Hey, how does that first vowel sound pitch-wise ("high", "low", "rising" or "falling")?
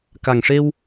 low